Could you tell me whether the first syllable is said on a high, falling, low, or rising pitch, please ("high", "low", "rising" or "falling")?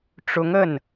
rising